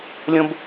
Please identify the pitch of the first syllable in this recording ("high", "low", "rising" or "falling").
high